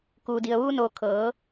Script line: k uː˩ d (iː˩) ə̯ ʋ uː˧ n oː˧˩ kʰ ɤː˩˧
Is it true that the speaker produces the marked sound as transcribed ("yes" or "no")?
no